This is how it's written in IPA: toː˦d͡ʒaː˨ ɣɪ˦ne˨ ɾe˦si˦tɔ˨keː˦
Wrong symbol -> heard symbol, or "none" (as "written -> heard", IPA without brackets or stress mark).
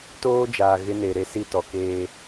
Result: none